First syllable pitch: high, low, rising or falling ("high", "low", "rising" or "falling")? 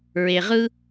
low